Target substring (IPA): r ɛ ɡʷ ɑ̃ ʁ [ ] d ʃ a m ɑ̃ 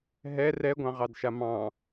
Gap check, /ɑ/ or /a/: ɑ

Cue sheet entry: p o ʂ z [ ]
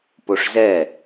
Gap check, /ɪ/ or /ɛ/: ɛ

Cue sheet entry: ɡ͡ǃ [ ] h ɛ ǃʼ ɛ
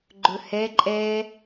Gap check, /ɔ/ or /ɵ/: ɵ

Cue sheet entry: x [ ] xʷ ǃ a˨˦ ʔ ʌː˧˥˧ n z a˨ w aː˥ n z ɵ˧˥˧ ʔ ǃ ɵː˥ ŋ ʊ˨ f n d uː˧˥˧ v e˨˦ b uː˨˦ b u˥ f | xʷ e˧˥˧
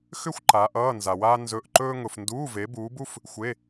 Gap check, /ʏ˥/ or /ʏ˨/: ʏ˥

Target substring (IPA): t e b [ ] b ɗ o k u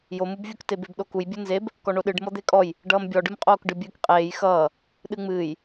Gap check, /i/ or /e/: e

